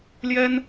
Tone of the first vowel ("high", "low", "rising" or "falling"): high